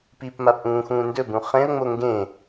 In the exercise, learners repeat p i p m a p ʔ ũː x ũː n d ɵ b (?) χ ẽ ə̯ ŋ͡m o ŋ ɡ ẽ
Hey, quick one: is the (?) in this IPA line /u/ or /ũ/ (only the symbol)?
ũ